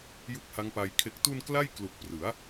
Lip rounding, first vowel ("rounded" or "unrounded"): rounded